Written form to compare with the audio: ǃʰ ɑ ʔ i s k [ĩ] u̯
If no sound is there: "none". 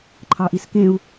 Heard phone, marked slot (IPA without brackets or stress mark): ẽ